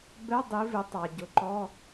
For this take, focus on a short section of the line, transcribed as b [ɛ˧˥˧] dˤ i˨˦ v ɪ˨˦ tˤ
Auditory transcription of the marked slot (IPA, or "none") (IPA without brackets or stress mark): ɛ˧˥˧